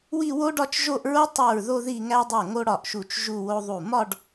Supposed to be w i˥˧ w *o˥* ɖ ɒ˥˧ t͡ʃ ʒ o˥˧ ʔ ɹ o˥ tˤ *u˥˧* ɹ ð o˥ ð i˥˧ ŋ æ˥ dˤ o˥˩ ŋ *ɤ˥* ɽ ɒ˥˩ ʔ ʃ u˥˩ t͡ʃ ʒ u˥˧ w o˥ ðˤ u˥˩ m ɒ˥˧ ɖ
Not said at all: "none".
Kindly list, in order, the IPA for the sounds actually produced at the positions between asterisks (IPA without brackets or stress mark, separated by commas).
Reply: o˥, u˥˩, o˥